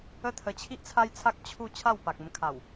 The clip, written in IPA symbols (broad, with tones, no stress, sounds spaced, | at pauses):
ə˧ t̪ʰ ə˨˩ t͡ɕʰ i˦ ʔ t͡sʰ a˦ j t͡sʰ a˦ k̚ t͡ɕʰ u˥˧ t͡ɕʰ a˥˧ w p a˨ k̚ ə˧ m kʰ a˨˩ w